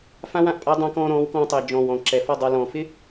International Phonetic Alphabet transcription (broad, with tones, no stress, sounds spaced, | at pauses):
f ã˦ w ã˨ ʔ pʼ a˦ dˤ ã˧ k ɔ̃ː˧ ɾ ɔ̃ː˨˦ w k ɔ̃ː˧ tˤ ɘ˨ i̯ d͡ʒ ɔ̃ː˨ w ɔ̃˨ ǁ ɛ˨ f ɔ˦˨ dˤ a˧ l ɔ̃ː˨ f ɪ˦